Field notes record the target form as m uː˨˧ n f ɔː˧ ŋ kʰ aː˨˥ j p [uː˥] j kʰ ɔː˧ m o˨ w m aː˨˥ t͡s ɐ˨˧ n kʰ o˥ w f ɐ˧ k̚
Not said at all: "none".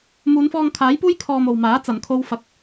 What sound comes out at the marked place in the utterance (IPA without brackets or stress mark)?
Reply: uː˥